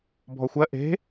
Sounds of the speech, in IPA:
bʱ ɔ xʷ ɜ ʔ e̤

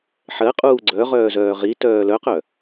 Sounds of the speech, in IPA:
ħ ɜ qʼ uː ɡ͡ǀ œ ʁ œː z œː ʁ i t œː l œ q œ

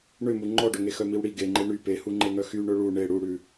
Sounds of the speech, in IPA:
ɳ ø m u ŋ͡ǃ ɔ ɖ ɵ ŋ e x œ m i w ɽ i ɡ e ŋ͡ǃ e ɳ y p e h u ŋ͡ǃ e ŋ œ x y ɳ ɵ ɭ u ɳ e ɽ u ɽ ʉ

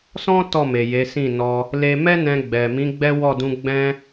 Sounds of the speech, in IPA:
s ɔ̃˦ t ɔ˦˨ m e˨ j e˨˦ s ĩ˦˨ n ɔ˧ | l e˧ m ɛ˦ n ɛ̃˧ ɡ͡b ɛ˨ m ĩ˨˦ ɡ͡b ɛ˦ w ɔ˦˨ d ũ˧ ɡ͡b ɛ̃˧

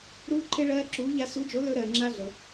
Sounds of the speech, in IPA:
ɾ uː˥ ǃʰ e˥ ɭ ɜː˥ ǁ uː˧˥ ʎ a˥ s u˧˥ d͡ʒ o˧˥ l ɵ˥ ɾ ɜː˨ ŋ͡ǁ a˥ ɮ ɤ˨

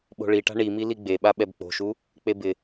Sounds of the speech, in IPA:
ɓ o̤ ɭ i ʈ a̤ ɳ i m i l i ɡ͡b e ɓ a ɓ ɛ b k͡p o̤ ʃ u | k͡p e b ɪ

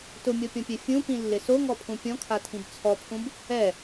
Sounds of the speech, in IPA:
t ʊ mʲ ɔ pʲ ɔ̃ pʲ ɛ fʲ ũ p ĩ lː ɪ s o ŋ ɔ pʰ ũ pʲ ɔ̃ kʰ a tʰ ĩ b t͡sʰ ɔ pʰ ũ b | ɛ

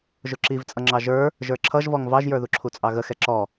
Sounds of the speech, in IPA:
ʒ ʊ ǁ i v t͡sʼ ʌ ŋ͡ǁ ɑ ʒ ə˞ | ʒ ə˞ ǁʰ ʌ ʒ v ɔ ŋ v ɑ ʒ j ə˞ ð u ǁʰ u t͡sʼ ɑ ɣ ə x ɛ ǁ ɔ

